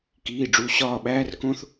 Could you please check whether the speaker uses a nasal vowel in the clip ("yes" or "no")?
yes